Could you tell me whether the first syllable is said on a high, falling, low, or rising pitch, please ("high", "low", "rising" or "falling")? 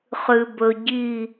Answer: low